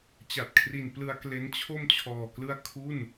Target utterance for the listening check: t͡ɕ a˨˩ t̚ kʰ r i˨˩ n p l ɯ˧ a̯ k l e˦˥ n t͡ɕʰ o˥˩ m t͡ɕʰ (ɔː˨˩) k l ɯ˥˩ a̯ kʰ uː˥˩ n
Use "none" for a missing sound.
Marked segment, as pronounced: ɔː˨˩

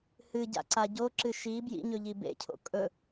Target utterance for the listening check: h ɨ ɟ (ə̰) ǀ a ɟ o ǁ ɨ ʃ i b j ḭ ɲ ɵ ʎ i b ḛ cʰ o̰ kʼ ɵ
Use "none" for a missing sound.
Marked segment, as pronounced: a̰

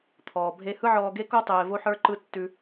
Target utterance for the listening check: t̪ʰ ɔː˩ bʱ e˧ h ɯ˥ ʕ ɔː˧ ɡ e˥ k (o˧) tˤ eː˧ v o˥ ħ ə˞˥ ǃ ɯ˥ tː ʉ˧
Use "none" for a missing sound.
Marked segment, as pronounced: o˥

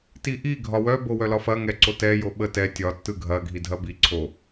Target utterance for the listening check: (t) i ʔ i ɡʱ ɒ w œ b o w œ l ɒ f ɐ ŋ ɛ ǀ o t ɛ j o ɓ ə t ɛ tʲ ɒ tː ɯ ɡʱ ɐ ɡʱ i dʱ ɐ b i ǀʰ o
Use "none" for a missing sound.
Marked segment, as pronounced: t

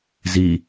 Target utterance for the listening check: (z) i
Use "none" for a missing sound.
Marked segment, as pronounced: z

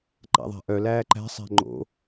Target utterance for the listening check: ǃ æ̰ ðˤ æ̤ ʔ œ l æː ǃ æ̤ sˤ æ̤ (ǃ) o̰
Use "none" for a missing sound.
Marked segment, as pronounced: ŋ͡ǃ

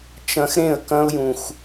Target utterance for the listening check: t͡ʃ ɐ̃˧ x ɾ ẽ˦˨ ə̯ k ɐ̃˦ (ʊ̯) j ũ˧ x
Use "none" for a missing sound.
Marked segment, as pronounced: ʊ̯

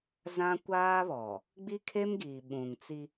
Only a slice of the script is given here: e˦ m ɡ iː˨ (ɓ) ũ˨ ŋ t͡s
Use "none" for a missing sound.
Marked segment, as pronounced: ɓ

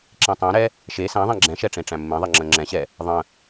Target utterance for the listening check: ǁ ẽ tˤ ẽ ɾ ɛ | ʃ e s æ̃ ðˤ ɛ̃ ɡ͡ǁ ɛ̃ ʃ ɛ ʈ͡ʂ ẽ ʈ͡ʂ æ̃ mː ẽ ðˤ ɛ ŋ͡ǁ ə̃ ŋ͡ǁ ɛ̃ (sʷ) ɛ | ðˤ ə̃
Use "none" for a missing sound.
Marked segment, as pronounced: ɕ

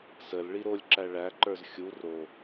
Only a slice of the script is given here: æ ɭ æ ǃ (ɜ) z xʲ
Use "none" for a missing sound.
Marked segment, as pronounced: ə˞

